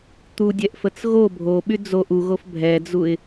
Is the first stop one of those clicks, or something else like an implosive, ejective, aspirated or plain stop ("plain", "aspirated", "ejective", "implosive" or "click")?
plain